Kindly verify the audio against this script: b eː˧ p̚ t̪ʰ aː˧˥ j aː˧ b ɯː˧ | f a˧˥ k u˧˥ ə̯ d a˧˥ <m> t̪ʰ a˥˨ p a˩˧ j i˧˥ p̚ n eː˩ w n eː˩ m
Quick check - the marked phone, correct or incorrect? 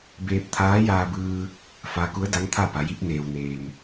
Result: incorrect